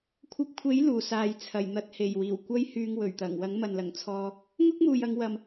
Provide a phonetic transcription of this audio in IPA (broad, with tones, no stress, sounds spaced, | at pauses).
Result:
kʷʰ ɐ˧ p̚ kʷʰ e˨˥ j l uː˨˩ s aː˨ j t͡sʰ ɐ˨˩ j n̪ ɐ˨ t̚ h e˨˩ j w iː˨˩ w kʷ ɐ˥ j h yː˧ ŋ w ɵ˨˩ ɥ t̪ ɐ˨˩ ŋ w ɐ˨˥ ŋ m ɐ˨ n l ɐ˨˩ ŋ t͡sʰ ɔː˧ | ŋ ʊ˥ k̚ m uː˨ j ɐ˨˧ ŋ w ɐ˨ m